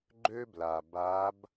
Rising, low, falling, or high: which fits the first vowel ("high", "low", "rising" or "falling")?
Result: high